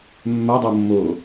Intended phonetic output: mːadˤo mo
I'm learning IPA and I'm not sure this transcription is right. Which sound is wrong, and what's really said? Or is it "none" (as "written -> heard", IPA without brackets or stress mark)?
m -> mː